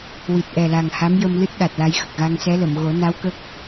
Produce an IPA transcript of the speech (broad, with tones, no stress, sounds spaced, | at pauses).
w i˨˩ t̚ ʔ ɛ˨˩ l a˨˩ ŋ h a˧˥ m j ə˧ m l ɨ˦˥ t̚ ɗ a˨˩ t̚ l a˧ j x ə˨˩ k̚ ɣ a˧ ŋ s ɛ˧˥ l ə˨˩˨ m ɣ o˨˩˦ n a˧˥ w k ə˦˥ k̚